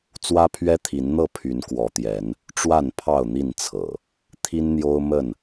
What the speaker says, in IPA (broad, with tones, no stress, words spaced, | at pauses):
t͡swä˦pʰɥɛ˦t̪ʰi˨˦n n̪ɤ˥˨pʰy˨˦n kwɔ˨˦t̪jɛ˨˦n | ʈ͡ʂwa˥˨npʰɑ˥˨ʊ̯n̪i˥˨nt͡sʰɤ̰˨˩ | t̪ʰi˦nn̪jo˦ʊ̯mə˥˨n